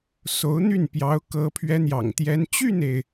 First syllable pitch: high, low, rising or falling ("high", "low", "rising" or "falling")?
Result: rising